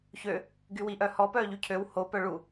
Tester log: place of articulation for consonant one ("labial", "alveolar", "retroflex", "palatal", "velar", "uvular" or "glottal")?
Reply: palatal